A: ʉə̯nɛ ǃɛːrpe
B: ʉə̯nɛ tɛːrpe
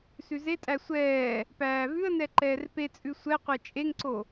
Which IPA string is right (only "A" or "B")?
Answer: A